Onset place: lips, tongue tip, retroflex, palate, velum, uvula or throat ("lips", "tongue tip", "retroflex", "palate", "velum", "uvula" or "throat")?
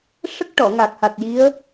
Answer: retroflex